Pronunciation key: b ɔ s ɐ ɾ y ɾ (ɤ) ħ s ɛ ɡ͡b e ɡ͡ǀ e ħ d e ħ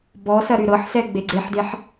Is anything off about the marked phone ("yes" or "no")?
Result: no